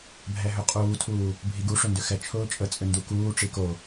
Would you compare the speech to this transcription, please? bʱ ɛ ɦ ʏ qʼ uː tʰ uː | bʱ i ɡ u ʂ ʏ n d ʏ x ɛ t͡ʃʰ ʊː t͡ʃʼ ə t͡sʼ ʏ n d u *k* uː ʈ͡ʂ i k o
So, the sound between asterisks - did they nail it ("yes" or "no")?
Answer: yes